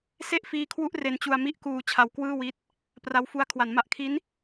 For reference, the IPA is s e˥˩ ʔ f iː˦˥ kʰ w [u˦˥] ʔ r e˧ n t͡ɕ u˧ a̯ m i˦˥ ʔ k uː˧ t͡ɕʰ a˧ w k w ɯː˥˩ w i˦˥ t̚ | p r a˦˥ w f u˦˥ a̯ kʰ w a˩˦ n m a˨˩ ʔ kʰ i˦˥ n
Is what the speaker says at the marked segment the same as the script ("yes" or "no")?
yes